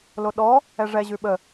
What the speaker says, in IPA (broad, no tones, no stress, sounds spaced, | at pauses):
l o ɗ ɔ | ɛ ʐ ɛ ʑ ʉ ɓ ə